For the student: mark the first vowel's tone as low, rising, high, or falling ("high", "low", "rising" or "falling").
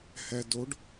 low